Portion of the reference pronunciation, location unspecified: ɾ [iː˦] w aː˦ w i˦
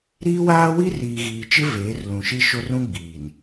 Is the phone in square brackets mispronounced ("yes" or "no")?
no